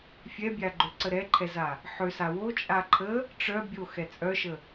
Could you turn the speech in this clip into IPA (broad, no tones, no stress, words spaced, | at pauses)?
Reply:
fʲɛbʲaɡ͡ǃøǀə ɾɛǃʰɛza | ħøsa wot͡ʃʼa ǃʰə | ʈ͡ʂœ bʲoxɛ t͡sʼœʃə